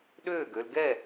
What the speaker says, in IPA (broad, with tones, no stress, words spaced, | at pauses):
ɗøː˦˨ɡø˧lɡɛ˦˨